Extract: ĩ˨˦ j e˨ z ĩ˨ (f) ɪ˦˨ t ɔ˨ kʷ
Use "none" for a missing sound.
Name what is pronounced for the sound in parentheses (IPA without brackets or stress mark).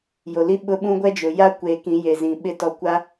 ɓ